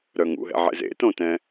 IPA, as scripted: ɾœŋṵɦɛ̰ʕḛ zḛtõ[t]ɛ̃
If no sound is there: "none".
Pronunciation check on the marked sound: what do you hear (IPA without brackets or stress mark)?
t